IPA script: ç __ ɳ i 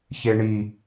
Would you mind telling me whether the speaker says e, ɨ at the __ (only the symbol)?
e